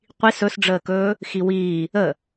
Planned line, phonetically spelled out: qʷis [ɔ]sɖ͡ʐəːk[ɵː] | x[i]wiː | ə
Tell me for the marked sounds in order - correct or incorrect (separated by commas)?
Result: incorrect, correct, correct